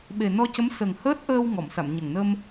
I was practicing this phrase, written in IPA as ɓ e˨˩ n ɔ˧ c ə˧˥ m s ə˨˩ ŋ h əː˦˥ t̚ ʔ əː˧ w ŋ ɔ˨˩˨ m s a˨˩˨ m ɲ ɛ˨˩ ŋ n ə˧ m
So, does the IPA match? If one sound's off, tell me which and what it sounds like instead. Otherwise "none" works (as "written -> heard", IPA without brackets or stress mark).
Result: ɛ˨˩ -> ə˨˩